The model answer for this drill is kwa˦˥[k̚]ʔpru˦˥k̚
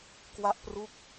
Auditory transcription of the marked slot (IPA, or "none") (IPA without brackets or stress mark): none